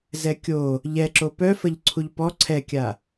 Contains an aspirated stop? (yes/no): yes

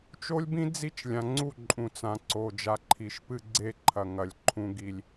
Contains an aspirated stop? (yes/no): yes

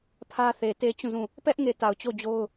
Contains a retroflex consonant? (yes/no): no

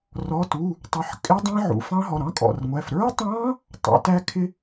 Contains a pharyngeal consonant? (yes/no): yes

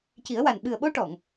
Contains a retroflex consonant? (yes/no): yes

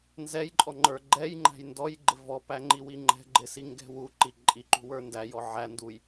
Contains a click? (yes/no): yes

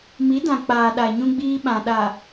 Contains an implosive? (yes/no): yes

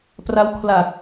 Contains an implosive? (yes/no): no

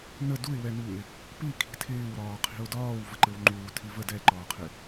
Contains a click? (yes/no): yes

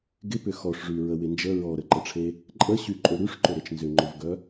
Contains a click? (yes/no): yes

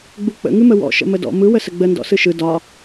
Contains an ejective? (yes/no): no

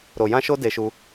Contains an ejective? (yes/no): no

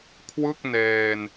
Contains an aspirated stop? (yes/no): yes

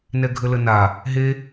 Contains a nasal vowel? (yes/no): no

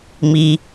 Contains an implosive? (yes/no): no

